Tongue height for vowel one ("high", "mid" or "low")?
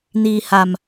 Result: high